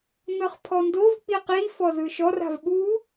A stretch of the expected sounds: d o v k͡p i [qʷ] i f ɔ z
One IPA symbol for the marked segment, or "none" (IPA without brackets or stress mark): q